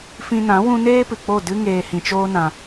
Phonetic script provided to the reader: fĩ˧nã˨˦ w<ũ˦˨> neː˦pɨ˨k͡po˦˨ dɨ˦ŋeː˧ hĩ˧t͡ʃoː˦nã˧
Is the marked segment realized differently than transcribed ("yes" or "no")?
yes